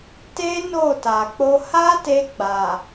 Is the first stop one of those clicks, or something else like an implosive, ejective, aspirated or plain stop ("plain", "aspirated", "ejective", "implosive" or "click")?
plain